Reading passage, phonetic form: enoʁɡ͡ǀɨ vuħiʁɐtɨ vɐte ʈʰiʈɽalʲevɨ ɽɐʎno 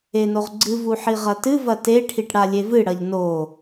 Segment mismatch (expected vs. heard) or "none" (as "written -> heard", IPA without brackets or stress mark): none